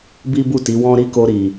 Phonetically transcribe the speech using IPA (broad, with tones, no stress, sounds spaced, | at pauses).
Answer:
b i˦ b u˦˨ t i˨˦ w ɔ̃˦ ɾ i˦ k o˧ ɾ i˨